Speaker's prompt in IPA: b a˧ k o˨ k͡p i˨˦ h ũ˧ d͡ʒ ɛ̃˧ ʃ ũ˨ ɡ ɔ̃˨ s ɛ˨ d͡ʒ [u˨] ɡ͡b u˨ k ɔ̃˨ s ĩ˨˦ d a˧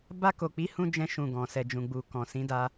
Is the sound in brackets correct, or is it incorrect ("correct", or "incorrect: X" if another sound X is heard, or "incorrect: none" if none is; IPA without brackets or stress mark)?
incorrect: ũ˨